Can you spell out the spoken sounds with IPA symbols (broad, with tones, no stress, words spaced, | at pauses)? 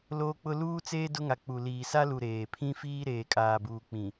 loː˦k͡pʊ˦ luː˦t͡seː˦ dʊ˦ŋa˨k͡pu˨ liː˨sa˦lu˨ ɾeː˨ pʰĩ˦fiː˦ ɾeː˨kʼaː˨ buː˨k͡pĩ˨